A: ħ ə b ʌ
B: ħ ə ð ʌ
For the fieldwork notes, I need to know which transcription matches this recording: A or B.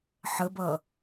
A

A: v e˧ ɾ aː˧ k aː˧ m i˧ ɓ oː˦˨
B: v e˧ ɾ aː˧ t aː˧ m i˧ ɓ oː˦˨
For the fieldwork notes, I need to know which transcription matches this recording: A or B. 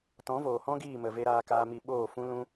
A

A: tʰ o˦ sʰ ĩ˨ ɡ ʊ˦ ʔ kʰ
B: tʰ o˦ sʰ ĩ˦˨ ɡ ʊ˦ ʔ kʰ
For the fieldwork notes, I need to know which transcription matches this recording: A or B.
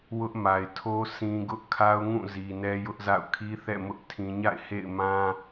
A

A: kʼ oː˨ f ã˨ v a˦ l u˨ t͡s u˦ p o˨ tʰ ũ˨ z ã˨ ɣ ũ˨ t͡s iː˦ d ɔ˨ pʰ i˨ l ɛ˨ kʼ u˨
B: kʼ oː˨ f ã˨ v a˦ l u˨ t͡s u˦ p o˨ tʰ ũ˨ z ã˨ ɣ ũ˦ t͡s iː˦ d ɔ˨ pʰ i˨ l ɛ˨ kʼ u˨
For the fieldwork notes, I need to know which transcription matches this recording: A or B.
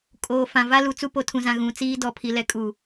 A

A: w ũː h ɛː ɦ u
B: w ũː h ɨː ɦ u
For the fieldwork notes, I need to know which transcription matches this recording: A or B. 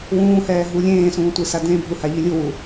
A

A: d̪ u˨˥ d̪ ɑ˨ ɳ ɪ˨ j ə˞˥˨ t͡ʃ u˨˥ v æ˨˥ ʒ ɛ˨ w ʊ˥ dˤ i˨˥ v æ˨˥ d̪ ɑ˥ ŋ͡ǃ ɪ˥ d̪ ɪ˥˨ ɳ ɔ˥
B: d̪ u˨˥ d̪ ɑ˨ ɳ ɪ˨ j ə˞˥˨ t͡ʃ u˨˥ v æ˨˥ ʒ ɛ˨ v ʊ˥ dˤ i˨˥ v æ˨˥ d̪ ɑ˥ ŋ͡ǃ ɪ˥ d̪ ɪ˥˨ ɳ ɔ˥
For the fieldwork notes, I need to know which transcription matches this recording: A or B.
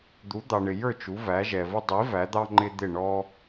B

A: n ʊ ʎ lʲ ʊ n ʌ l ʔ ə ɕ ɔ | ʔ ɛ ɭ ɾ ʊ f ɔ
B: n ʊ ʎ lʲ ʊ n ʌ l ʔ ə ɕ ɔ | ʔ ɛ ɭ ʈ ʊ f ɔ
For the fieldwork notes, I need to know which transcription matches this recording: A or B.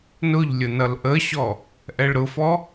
A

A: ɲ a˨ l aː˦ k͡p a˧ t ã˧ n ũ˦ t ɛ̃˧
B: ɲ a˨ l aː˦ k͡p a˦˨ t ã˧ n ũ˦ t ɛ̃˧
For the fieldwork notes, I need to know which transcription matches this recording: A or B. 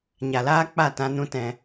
B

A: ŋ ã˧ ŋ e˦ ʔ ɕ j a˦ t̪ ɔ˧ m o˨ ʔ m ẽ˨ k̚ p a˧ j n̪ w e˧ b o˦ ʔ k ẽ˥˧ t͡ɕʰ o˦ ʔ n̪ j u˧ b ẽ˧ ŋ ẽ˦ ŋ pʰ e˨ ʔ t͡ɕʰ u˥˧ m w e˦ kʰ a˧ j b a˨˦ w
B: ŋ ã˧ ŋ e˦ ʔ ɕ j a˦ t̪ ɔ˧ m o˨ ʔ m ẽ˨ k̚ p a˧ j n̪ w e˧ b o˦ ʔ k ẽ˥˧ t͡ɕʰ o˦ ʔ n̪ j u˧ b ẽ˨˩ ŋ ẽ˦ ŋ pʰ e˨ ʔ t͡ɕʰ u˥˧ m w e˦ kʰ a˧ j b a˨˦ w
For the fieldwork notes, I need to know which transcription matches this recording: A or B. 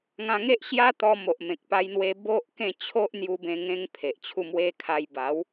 A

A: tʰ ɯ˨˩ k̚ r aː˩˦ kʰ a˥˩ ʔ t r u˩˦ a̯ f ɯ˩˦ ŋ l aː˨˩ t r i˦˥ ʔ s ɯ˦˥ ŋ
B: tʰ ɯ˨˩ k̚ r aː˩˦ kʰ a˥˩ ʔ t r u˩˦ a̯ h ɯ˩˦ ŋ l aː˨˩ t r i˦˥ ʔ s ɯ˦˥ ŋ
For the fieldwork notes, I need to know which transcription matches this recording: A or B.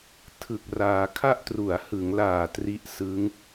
B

